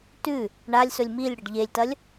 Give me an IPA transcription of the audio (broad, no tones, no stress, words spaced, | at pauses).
tʉ | ɳalʲsɵlʲ milʲɽɐɖ ʎelʲtɐlʲ